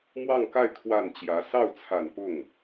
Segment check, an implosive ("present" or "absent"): absent